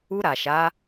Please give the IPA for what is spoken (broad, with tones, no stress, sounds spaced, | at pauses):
u˧ ɾ a˨ ʃ a˨˦